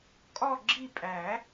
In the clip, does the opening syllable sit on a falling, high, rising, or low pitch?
falling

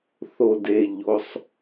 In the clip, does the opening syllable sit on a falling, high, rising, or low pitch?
low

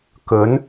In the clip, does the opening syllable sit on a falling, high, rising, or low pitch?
rising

